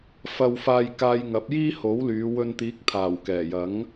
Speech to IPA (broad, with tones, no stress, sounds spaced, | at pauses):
f ɐ˧ w f aː˧ j k aː˧ j ŋ ɐ˨˥ p̚ j iː˥ h o˨˥ w l yː˨˧ w ɵ˧ n t̪ iː˨˥ k̚ t̪ʰ aː˨˩ w k ɛː˨˩ j ɐ˨˥ ŋ